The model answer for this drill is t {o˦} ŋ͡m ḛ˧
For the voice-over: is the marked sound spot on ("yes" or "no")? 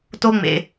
yes